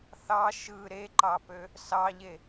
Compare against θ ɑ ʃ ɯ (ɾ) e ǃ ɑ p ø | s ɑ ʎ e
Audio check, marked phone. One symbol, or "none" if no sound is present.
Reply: ɾ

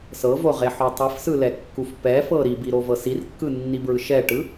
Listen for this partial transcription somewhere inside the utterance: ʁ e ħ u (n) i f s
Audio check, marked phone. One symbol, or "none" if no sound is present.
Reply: tˤ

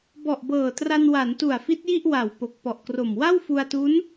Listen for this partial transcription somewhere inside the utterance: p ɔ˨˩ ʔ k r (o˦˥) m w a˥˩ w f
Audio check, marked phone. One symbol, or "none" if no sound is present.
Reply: o˨˩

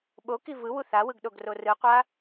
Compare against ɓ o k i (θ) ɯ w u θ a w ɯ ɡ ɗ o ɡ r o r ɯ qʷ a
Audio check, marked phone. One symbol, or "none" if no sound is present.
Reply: v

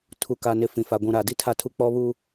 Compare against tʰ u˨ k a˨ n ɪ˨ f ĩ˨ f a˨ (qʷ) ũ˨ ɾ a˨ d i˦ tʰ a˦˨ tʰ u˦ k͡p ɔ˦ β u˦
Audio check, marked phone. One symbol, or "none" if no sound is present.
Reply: ɡʷ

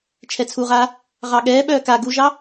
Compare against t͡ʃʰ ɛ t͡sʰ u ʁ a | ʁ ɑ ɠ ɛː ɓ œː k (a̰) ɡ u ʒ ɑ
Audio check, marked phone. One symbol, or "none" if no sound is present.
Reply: a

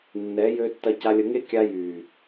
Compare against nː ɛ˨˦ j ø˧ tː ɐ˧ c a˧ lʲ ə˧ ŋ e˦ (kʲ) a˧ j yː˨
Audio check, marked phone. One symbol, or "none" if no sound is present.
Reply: kʲ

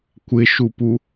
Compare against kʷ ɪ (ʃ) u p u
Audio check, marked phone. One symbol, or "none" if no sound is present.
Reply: ʃ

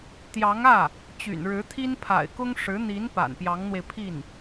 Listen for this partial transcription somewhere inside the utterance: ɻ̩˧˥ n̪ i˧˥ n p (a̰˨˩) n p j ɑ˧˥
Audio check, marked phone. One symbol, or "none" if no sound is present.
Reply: a̰˨˩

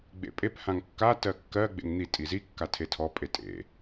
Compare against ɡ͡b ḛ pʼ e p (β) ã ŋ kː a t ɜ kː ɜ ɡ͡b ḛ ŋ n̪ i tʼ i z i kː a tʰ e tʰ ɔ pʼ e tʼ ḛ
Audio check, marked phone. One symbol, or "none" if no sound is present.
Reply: h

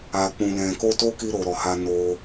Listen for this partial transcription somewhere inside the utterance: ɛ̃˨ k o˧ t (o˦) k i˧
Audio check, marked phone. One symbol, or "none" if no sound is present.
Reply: o˦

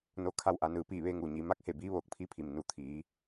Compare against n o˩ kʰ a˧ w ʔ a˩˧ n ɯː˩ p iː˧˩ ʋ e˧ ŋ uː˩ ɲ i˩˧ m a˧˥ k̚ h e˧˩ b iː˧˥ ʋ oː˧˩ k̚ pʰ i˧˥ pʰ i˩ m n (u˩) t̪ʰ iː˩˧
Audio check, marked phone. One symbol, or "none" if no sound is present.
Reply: u˩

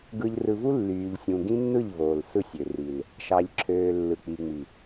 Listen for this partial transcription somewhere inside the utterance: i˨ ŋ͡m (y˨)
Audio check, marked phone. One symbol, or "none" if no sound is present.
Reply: i˨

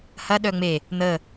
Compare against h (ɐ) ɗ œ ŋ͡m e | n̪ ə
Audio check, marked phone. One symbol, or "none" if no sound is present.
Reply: ɐ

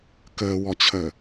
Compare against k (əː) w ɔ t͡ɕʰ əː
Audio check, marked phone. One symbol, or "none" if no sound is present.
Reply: əː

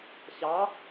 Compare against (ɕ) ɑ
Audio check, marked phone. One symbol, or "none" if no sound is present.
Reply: ɕ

